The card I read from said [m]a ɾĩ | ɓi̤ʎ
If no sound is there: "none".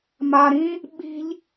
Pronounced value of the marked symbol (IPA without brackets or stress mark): m